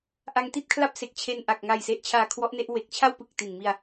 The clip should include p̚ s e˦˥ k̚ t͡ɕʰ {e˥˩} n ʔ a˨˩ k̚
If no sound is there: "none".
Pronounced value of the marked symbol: e˥˩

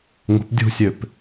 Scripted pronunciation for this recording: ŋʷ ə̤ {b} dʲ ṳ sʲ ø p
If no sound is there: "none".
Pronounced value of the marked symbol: p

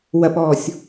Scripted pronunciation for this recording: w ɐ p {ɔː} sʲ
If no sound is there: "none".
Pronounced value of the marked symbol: ɔː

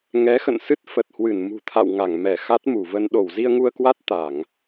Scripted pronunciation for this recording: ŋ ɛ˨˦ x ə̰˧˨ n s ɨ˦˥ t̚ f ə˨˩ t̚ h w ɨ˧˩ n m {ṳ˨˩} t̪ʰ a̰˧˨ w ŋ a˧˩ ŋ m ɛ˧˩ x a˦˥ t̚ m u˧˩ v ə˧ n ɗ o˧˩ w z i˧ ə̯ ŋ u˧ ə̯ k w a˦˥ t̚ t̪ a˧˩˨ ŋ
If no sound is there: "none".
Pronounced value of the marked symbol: ṳ˨˩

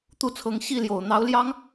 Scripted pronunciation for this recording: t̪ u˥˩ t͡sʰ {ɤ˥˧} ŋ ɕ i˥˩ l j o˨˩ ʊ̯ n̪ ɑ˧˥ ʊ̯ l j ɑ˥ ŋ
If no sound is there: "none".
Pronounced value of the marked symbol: ɤ˧˥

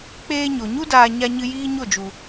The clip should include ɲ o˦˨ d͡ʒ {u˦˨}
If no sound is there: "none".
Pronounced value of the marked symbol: u˨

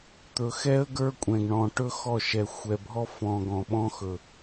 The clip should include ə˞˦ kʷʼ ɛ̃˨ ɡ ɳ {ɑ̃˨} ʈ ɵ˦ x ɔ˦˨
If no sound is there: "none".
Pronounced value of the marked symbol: ɔ̃˨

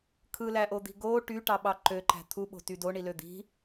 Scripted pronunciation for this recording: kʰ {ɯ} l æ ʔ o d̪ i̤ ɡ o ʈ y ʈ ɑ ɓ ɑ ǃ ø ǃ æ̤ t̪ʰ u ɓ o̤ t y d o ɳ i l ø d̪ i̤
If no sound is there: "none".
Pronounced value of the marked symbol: ɯ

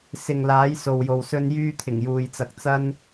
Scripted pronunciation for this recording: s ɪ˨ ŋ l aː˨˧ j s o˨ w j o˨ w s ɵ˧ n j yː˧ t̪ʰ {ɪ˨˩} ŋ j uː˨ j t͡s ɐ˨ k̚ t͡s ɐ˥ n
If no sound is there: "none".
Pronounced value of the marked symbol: ɪ˨˩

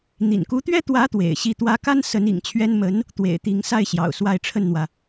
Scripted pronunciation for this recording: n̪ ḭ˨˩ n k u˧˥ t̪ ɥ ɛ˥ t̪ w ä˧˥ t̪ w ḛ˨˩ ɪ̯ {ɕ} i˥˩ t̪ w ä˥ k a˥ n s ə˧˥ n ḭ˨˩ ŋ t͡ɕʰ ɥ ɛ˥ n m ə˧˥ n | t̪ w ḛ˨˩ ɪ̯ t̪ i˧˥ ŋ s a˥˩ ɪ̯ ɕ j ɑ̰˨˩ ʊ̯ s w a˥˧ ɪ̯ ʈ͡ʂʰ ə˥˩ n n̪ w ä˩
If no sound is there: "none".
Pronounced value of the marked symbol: ɕ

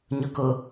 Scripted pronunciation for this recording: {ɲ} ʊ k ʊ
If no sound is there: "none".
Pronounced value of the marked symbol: ɲ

